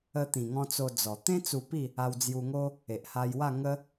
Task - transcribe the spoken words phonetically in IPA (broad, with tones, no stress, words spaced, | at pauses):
ə˧t̪ĩ˨˩ŋɔ̃˧ t͡so˧d͡zɔ˨˩ t̪ẽ˦ t͡su˧pi˥˧ | a˧wd͡zju˧ŋo˦ | e˨ʔha˧jwa˥˧ ŋə˧